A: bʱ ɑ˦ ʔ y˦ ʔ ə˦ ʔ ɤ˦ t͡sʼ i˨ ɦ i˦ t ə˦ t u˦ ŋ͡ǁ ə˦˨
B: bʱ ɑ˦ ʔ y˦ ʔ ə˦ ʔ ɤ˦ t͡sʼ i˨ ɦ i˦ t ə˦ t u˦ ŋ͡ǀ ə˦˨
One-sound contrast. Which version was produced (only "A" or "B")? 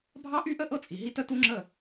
A